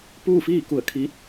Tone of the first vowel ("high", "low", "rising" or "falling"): falling